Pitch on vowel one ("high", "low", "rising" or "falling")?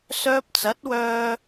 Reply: high